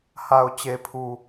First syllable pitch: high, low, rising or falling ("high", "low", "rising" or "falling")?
low